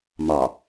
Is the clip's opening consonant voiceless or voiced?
voiced